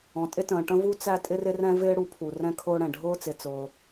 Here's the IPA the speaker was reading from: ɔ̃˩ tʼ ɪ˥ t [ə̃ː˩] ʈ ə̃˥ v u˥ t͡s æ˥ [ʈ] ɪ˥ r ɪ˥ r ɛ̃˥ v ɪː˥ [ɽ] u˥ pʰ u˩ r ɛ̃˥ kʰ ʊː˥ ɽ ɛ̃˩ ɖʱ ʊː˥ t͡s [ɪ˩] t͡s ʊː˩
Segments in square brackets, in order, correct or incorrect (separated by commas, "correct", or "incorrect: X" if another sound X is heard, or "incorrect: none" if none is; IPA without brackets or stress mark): correct, incorrect: tʼ, correct, correct